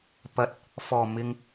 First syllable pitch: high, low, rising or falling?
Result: low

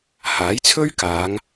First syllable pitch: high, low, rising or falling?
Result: rising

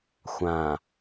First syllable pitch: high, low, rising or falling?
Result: low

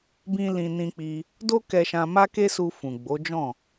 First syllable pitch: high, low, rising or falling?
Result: high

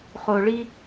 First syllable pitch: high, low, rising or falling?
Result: low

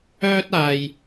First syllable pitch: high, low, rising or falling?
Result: high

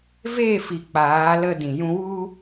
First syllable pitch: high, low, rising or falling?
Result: falling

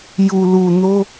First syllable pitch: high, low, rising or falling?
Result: low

